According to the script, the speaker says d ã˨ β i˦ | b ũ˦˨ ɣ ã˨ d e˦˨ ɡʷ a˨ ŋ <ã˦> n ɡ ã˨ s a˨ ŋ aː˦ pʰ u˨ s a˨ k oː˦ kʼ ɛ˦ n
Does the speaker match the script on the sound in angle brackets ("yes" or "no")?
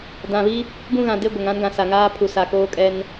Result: yes